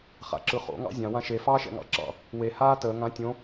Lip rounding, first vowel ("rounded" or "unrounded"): unrounded